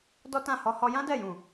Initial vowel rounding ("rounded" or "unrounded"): rounded